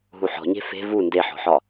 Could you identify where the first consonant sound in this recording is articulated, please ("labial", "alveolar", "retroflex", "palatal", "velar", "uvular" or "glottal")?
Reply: glottal